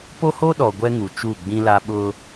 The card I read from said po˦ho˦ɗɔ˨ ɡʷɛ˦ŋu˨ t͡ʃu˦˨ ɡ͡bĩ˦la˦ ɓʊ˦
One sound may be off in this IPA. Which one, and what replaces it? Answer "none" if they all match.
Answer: none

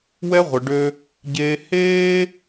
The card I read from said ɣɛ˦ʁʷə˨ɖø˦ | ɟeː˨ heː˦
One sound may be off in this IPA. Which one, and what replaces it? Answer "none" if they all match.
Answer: ɣ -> w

